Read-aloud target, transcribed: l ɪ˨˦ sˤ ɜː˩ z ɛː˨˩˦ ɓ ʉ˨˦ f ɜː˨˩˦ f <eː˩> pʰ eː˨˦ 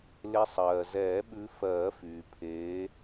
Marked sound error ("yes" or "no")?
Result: yes